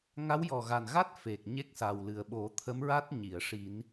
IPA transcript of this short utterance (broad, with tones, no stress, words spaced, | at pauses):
ŋa˧˥wjɔ˨˩ɣa˨˩nɣa˦˥t̚ fe˨˩k̚ɲe˦˥k̚sa˨˩wlɨ˨˩ə̯ ɓo˨˩˦t̪ʰə˧˥mɹa˦˥t̚ ɲi˨˩˨ə̯ ʂi˨˩˦n